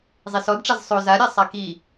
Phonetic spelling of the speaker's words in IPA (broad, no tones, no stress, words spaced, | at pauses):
zˤisɔdʈ͡ʂaz sˤo zaɾʲa sˤaki